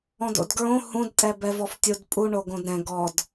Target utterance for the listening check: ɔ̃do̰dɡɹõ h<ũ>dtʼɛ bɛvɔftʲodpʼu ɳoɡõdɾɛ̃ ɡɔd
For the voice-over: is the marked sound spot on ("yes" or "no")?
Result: yes